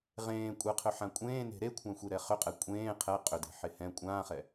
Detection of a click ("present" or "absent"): absent